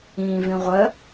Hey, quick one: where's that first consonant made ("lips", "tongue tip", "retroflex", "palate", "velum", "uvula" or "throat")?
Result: lips